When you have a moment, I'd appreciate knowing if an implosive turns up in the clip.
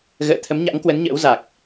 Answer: no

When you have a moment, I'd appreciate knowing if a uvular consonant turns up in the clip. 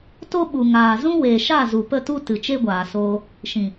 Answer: no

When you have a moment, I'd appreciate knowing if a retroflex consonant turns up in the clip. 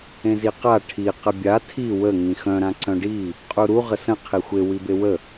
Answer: yes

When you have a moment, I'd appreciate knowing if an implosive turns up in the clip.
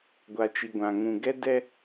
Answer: no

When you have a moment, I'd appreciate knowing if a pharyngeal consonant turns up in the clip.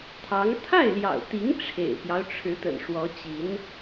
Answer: no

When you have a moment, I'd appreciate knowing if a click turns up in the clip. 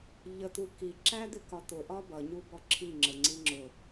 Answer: yes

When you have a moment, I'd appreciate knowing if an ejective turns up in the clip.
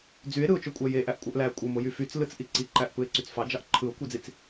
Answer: yes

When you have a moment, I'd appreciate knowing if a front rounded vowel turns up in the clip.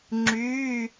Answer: yes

